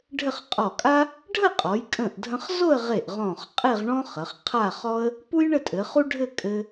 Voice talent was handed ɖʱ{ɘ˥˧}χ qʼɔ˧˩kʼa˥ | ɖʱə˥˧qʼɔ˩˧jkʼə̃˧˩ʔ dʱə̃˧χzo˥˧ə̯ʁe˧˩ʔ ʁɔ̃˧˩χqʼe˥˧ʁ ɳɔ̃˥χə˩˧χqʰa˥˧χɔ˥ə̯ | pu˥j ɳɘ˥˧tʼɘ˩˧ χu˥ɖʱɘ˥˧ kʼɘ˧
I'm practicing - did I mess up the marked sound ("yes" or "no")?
no